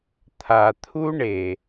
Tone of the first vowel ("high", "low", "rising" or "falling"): low